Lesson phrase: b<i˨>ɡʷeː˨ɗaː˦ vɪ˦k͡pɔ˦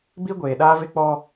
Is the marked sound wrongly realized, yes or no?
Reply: yes